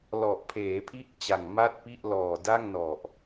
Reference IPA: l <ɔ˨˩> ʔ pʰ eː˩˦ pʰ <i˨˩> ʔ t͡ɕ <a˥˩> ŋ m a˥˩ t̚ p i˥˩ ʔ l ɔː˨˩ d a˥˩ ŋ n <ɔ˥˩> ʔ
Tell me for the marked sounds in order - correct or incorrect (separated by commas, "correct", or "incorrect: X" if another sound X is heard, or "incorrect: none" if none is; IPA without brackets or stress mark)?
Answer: correct, incorrect: i˦˥, incorrect: a˨˩, incorrect: ɔ˨˩